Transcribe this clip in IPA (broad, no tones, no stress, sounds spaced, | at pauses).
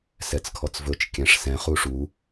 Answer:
s ɛ t͡s kʰ ɔ t͡s v ɵ t͡ʃ kʲ ɛ̃ ʂ s ɛ̃ χ u ʂ u